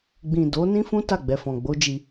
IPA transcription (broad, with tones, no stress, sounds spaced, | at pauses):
ɡ͡b ĩ˨ d o˨˦ n ĩ˦ f ũ˦ t a˦˨ ɡ͡b ɛ˨ f ɔ̃˨ ɡ͡b o˨˦ d͡ʒ i˧